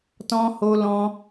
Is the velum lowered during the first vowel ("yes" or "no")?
yes